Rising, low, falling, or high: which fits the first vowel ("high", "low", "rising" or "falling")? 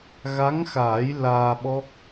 rising